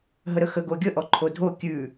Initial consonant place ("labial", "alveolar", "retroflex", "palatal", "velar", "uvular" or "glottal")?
glottal